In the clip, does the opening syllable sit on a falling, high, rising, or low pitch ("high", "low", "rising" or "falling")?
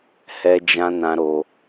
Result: high